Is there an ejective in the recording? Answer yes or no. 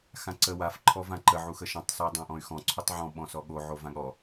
no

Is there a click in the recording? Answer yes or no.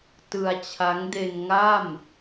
no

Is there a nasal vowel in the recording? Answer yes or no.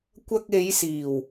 no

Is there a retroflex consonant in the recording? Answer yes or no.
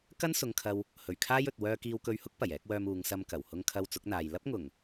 no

